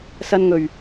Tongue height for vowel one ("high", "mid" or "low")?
low